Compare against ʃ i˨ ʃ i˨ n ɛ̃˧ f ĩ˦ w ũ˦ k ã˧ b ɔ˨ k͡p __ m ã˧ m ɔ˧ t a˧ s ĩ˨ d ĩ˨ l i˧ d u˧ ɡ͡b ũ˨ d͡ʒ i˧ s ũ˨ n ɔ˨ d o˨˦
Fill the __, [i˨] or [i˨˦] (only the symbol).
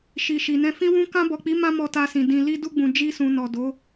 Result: i˨˦